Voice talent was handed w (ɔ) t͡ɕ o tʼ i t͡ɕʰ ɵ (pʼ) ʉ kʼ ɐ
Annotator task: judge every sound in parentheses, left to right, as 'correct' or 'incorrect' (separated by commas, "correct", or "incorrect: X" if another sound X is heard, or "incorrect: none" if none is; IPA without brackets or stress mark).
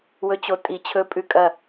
incorrect: ɵ, correct